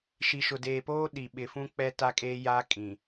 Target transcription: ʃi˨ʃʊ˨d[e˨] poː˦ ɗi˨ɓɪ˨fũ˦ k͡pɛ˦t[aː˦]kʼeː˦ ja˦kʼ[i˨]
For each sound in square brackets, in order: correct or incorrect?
incorrect: eː˨, incorrect: a˦, incorrect: ĩ˨

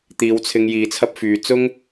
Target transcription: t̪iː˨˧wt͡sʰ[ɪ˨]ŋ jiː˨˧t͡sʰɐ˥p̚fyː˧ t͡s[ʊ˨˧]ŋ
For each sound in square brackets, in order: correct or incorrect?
incorrect: ɪ˧, incorrect: ʊ˥

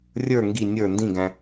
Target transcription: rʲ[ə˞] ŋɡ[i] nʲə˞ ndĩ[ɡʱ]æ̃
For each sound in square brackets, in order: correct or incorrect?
correct, correct, incorrect: ɡ

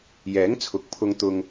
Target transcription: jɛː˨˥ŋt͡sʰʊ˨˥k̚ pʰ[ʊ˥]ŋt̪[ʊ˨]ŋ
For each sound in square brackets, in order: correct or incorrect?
correct, incorrect: ʊ˥

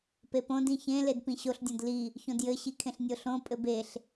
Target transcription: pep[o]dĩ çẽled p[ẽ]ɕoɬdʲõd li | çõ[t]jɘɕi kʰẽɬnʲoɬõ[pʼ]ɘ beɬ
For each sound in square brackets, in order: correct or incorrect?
incorrect: õ, incorrect: ĩ, incorrect: d, correct

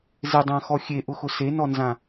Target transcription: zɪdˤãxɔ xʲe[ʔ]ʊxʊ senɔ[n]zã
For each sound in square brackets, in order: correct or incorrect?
correct, correct

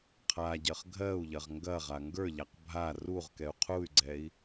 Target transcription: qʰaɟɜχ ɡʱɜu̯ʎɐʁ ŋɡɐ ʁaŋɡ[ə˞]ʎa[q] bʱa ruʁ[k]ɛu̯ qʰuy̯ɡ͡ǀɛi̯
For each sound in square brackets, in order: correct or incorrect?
correct, correct, correct

